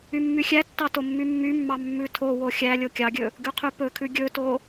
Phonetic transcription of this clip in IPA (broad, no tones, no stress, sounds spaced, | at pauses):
y mː y xʲ æ tː ɑ t o mː y mː y mː ɑ mː ʉ tʰ o w o xʲ æ lʲ o kʲ ɑ ɡʲ ɵ | ɡ ʉ qʰ y p ɵ kʰ ʉ ɡʲ ɵ t o